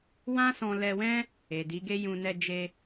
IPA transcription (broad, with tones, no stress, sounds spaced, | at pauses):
w ã˦ s ɔ̃˧ l ɛ˧ w ɛ̃˦ | e˨ d i˨˦ ɡ e˦ j ũ˧ n ɛ˧ d͡ʒ e˧